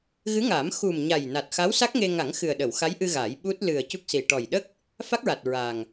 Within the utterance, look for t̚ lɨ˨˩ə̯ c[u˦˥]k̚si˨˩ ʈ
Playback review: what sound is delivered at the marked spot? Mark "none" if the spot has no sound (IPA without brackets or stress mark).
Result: u˦˥